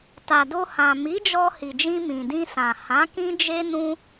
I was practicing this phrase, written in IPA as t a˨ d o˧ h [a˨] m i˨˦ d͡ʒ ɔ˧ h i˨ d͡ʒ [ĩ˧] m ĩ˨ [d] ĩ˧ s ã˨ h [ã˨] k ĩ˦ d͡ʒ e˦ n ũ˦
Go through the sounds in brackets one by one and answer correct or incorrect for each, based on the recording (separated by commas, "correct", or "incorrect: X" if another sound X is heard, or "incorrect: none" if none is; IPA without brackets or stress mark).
incorrect: ã˨, correct, correct, incorrect: ã˨˦